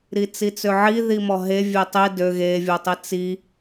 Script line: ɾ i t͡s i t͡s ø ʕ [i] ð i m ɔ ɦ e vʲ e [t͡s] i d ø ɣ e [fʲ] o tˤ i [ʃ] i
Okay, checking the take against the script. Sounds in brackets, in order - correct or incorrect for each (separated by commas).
correct, incorrect, incorrect, incorrect